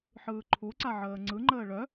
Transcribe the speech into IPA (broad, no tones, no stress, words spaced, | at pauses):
ħɯːǃʰuǀa ʕəːŋ͡ǀɯŋ͡ǃəː ɭœ